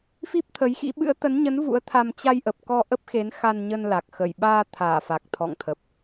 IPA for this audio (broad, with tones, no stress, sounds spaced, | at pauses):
f i˦˥ p̚ t̪ʰ ə˨˦ j x ḭ˧˥ ɓ ɨ̰˧˥ ə̯ t̪ ə˨˦ n ɲ ə˨˦ n v ṵ˧˥ ə̯ t̪ʰ a˧ m t͡ɕ a˧ j ʔ ə˨˩ p̚ k ɔ˧ ʔ ə˦˥ p̚ x e˨˦ n x a˧ n ɲ ə˧ n l a˨˩ k̚ x ə˧˩ j ɓ aː˧ t̪ʰ aː˧˩ f a˨˩ k̚ t̪ʰ ɔ̰˧˨ ŋ t̪ʰ ə˨˩ p̚